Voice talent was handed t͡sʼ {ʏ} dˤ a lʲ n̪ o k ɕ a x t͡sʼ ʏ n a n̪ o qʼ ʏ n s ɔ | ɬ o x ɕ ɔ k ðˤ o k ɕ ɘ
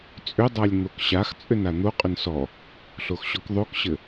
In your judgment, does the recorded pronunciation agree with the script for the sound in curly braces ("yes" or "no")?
yes